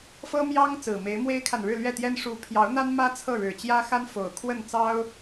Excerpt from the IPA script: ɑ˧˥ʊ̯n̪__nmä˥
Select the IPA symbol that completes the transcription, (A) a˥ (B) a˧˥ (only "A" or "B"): A